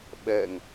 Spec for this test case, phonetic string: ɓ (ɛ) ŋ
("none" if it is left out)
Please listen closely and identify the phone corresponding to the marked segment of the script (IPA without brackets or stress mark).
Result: ɛ